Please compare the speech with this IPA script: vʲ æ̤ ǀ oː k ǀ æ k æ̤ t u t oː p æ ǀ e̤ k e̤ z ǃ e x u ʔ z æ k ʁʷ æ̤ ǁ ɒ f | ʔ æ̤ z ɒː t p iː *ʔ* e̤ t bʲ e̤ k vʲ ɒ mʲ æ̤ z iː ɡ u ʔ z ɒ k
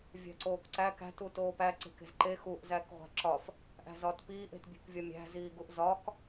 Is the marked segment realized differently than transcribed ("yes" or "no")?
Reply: no